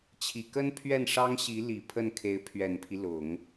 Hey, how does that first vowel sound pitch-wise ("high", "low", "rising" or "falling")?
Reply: low